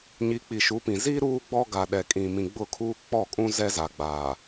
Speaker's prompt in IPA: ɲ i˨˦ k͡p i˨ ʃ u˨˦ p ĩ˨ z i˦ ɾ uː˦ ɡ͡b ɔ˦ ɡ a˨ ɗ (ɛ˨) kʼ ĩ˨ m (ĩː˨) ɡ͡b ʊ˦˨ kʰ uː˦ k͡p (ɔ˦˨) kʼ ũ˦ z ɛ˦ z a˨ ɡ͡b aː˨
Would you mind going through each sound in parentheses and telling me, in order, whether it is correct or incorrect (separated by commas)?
correct, incorrect, correct